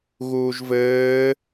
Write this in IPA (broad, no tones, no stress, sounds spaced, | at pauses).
ɣ uː ʒ v ɘː